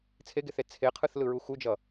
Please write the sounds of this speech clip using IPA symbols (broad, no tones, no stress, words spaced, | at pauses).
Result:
t͡sʰeɡeθe t͡sʰeqʰɯθlɯɹu xud͡ʒʌ